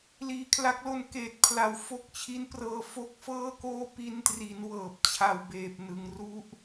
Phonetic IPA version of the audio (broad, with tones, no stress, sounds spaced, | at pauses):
l iː˨˩ kʰ l a˦˥ k̚ l o˧ n k eː˨˩ t̚ pʰ l a˩˦ w f o˦˥ k̚ t͡ɕʰ i˦˥ n p r ɤː˧ f o˥˩ k̚ f ɤː˥˩ k oː˥˩ p i˧ n t r i˩˦ n w ɤː˨˩ p̚ t͡ɕʰ a˨˩ w b eː˨˩ p̚ n ɯ˩˦ ŋ r u˦˥ ʔ